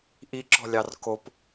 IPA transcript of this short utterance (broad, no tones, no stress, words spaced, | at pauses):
ʔiǁɔ̤ lʲɑrkop